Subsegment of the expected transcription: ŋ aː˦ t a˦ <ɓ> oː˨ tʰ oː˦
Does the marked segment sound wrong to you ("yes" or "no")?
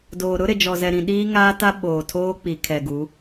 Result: no